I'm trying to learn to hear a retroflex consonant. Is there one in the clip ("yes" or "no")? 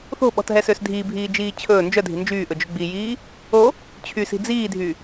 no